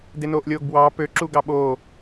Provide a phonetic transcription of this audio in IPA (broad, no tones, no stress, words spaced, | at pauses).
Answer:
denoːʔlʲoːɡbwɑː pø ǁuɡɑɓoː